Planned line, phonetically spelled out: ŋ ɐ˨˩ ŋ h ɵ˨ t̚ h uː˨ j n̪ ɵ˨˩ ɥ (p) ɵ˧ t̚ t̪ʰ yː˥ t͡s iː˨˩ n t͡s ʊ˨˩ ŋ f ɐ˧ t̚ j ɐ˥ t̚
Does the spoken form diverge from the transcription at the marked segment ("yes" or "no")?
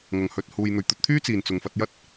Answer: yes